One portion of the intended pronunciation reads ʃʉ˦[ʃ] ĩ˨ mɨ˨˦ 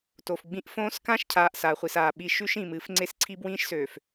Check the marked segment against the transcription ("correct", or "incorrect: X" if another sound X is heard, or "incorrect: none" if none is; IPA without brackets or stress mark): correct